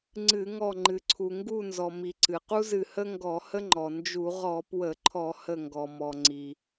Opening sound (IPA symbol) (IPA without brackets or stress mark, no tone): ŋ͡ǀ